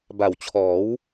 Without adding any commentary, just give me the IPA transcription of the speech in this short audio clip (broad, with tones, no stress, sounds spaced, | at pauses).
b a˨˩ w t͡ɕʰ ɔː˩˦ w